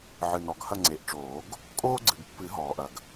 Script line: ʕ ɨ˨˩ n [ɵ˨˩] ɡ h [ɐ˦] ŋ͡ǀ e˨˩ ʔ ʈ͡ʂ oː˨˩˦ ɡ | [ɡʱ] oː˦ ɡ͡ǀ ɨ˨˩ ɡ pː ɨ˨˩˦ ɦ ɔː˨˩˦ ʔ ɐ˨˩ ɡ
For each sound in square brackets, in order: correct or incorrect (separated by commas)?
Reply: incorrect, incorrect, incorrect